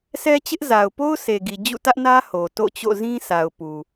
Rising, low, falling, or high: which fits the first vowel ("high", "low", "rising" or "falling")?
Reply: high